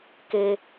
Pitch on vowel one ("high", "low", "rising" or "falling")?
high